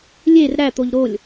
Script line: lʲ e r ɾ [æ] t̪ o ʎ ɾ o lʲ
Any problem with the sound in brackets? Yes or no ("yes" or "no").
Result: no